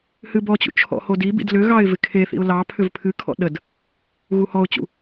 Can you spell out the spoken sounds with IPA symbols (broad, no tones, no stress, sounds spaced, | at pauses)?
h ɨ b ɔ t͡ɕ ṵ t͡ʃʰ ɔ̰ h o d i b ḭ d l ʏ ɣ ɑ ɪ̯ v ɪ kʰ e θ ḭ ʊ̯ l ɑ pʰ ʏ v pʰ ɨ kʰ ɔ̰ ɗ ə d | ɣ u h ɔ ʊ̯ t͡ɕ ṵ